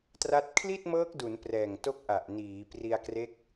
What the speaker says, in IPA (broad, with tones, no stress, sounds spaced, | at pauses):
t r a˦˥ t̚ kʰ l i˥˩ t̚ m ɤː˦˥ k̚ d u˩˦ n p r ɛː˨˩ ŋ t o˦˥ k̚ ʔ a˨˩ ʔ n iː˩˦ p r i˧ a̯ k r e˦˥ k̚